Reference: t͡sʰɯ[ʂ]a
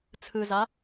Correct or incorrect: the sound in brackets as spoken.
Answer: incorrect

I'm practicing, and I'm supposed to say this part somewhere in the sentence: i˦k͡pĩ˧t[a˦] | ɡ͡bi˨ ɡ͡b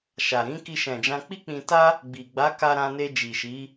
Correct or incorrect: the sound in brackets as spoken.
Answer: correct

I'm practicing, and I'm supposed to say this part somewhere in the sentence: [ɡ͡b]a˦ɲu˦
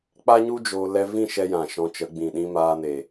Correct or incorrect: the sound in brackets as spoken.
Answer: incorrect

